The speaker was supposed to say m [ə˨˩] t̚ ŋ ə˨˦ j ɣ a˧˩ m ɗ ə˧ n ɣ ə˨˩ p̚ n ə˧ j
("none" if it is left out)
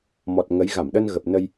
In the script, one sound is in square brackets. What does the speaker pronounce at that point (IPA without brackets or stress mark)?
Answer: ɔ˨˩